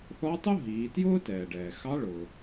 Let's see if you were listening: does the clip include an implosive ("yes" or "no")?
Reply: no